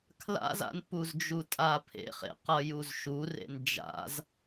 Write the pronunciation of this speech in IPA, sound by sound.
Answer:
kʰla̰za̰npuzd͡ʒu tʼapʰḛχḛ qʌjuzʃurḛn d͡ʒa̰z

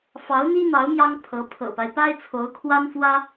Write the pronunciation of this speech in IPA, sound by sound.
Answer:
fɑ˧˥ʊ̯n̪i˥n̪ɑ˧˥ʊ̯ mjɑ˥ŋpʰɤ˧˥ pʰɤ̰˨˩pa˦ɪ̯ pa˥ɪ̯t͡sʰo˧˥ʊ̯kʰwa˥nfwä˥

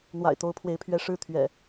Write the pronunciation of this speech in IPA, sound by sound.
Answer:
n̪wa̰˨˩ɪ̯t̪o˦ʊ̯pʰwe˨˦ɪ̯pʰɥɛ˨˦ ʂɻ̩˥˨t̪ʰɥɛ̰˨˩

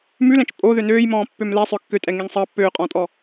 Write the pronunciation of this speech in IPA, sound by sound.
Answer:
mʉlɛ̃t͡ʃ pʼoðø nøːjmɔ̃ːpːøm lɛsˤœ kːøtʼɛŋeŋ sˤɑ pːøːqʼɔ̃ːtʼɔ

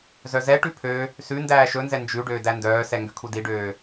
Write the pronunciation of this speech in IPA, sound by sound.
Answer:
zœzɛʈʉ pʰø | sʉndæː ʃɵnzɛ nd͡ʒʉɖøː dændœːsɛ ŋɡøkʰudiɖøː

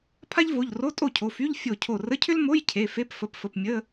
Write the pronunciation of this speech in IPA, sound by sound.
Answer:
pʰa˥ʎvo˩˧˩ʎ ro˧˥˧tʼo˥˩cʰo˩˧˩fy˧˥˧ʎ fʲo˧˩cʰo˧˩ rə˧˥˧cʰʏ˥lmo˧˥˧j cʰe˩˧˩fe˧˥˧p fə˩˧˩pfə˩˧˩p mʲə˧˥˧

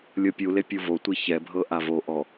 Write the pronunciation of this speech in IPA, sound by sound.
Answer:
lʲɤpʲule pʲuvotʷi çɛbʱɤ ʔavoʔɔ

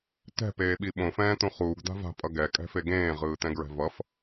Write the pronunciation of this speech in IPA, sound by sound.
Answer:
tɛ̤peːɓi ɓõfɛ̃ːt̪ũ χuːɡd̪a̤ va̤pʼʌ ɡɛkʼɛ̤fe ɡẽːʁɯːt̪ɛ̃ɡɹɛ̤ vʌf

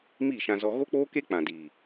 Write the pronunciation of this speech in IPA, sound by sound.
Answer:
miː˦˨ʃã˧zɔ˧ ɣo˦k͡poː˦ke˦ k͡pã˨diː˨

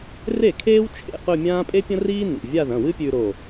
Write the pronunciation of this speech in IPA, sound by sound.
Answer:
re˥˩kʰeː˥w t͡ʃʰḛ˥˧qɵ˥˧mʲãː˥ pʼe˥pʲɐ̃˥riː˥ nḭ˩˧˩ vʲa˥˧ðɐ̃˩˧˩ wɨ˥pʲʉ˧ ɾo˧˩

